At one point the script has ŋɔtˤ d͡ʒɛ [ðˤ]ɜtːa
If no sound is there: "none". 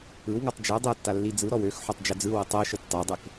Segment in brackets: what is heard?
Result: dˤ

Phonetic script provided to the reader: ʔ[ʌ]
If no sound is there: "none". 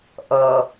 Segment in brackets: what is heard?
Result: ʌ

